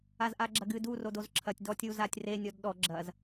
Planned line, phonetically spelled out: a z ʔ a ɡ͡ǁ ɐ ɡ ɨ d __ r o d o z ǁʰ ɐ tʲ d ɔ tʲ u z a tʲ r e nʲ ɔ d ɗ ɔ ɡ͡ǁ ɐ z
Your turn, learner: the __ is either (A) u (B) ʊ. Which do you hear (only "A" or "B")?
A